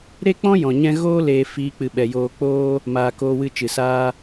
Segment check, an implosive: present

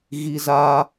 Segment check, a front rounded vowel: absent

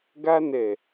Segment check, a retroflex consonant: absent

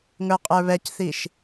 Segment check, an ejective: present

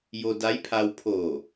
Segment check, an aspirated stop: present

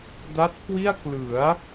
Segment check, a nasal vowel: absent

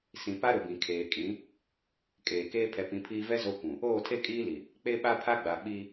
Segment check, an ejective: present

